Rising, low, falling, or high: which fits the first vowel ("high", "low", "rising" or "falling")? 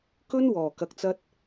high